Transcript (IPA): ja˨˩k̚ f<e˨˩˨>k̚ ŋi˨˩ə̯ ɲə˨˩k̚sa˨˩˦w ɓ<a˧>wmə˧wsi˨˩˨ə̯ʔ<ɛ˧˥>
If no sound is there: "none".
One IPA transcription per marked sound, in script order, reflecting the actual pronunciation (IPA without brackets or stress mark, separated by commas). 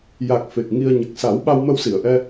e˨˩, a˧, ɛ˧